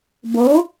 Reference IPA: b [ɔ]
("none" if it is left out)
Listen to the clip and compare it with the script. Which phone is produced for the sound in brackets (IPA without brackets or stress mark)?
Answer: o